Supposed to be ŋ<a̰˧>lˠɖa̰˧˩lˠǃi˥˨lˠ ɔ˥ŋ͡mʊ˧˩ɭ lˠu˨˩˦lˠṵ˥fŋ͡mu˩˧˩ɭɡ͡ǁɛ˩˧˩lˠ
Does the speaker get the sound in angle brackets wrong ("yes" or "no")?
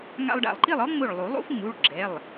no